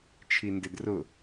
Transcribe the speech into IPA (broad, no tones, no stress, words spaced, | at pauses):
t͡ʃʰindɪdrʊ